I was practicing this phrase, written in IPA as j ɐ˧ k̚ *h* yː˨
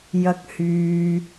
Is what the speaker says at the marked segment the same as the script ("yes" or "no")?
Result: yes